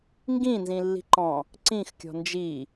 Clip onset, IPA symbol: ŋ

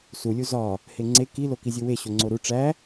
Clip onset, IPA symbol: s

